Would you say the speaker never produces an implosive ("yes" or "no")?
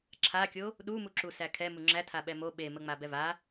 no